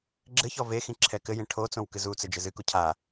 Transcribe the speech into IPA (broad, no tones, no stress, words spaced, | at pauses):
ɡ͡ǁɘçɔ vexĩ ǁʰɛkɘjẽ ʈʰot͡sõw kɨzut͡sɘ d͡ʒɘzɨku cʰa